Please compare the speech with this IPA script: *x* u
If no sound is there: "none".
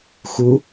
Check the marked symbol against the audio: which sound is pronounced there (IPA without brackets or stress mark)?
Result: x